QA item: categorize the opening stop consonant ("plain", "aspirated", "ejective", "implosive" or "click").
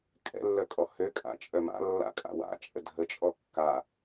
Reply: ejective